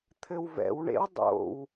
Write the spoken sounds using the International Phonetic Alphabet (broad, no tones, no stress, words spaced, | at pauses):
t̪ʰɘwvɛ̰wɳḛw dˤo̰w